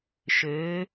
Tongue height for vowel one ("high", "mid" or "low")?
mid